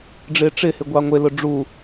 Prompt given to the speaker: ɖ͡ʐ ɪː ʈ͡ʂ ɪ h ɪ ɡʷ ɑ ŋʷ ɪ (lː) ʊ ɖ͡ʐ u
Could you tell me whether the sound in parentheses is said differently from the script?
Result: yes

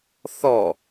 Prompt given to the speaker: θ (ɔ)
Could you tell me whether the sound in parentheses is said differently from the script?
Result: no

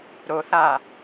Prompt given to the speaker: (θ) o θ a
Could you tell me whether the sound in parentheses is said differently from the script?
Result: yes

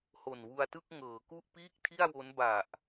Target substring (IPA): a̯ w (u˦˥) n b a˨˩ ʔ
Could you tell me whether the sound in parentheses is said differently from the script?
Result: yes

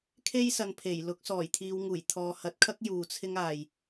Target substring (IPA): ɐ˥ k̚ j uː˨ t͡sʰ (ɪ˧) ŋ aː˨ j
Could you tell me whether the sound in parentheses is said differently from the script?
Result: yes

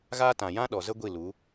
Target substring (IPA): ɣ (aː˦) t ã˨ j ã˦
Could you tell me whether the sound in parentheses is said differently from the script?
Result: no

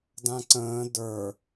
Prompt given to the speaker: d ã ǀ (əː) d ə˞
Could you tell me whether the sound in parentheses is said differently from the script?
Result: yes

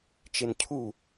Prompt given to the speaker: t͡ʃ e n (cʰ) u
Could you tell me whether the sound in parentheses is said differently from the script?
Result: no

